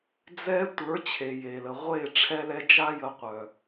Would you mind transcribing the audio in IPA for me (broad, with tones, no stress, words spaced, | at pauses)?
d͡zɛ˧ tʷə˞˨˦ t͡ɕʰe˨ je˨lə˨ʁʷe˦˨ ʈ͡ʂʰɛ˧lɛ˧d͡ʒa˦ jə˧ qʷœ˨